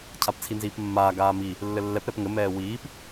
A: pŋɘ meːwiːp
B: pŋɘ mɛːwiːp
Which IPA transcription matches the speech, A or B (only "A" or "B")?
B